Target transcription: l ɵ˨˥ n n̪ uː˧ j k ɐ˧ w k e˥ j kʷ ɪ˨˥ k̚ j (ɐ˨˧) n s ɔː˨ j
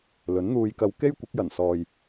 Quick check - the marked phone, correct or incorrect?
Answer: incorrect: ɐ˨˩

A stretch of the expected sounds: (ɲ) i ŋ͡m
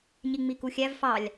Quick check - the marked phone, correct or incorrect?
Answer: correct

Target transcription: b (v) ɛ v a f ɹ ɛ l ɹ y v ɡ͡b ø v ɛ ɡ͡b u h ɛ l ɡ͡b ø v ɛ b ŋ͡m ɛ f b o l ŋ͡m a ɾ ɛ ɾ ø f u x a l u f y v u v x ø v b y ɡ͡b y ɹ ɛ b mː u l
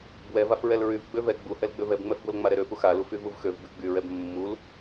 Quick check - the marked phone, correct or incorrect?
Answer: incorrect: w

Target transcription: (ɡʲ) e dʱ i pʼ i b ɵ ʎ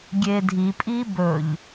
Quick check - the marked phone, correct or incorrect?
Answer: correct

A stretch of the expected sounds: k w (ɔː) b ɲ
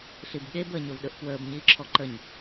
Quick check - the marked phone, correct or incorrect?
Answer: incorrect: əː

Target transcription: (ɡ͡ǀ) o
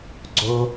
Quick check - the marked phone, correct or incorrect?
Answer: correct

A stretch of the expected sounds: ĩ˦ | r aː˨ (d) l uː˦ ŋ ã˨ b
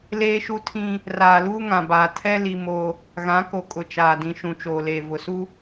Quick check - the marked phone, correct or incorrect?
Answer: incorrect: none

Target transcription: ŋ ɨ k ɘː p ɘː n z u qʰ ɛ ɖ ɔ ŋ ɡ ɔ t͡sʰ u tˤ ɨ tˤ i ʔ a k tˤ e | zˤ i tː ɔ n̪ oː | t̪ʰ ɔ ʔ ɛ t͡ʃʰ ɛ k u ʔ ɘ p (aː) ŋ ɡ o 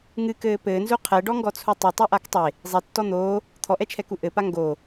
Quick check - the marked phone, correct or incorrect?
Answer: incorrect: a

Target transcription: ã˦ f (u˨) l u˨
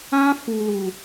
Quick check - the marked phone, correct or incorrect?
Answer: correct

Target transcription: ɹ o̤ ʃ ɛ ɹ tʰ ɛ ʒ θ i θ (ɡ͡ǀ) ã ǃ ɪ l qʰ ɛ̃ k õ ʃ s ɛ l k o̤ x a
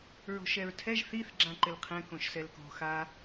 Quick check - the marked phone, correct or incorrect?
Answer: incorrect: ɡ͡ǁ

